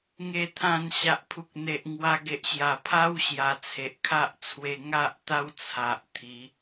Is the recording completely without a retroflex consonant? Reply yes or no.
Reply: yes